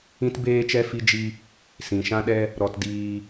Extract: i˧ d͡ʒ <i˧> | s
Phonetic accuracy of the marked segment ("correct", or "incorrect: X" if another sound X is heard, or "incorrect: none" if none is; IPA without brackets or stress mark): correct